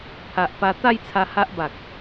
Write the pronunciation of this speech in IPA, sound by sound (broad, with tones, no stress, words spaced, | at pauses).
pʰa˨ʔpa˧ t̪a˥˧jt͡sʰa˧ ha˦ʔba˨k̚